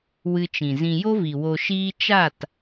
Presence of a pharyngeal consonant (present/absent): absent